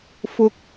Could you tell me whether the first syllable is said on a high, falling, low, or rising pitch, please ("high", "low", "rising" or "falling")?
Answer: low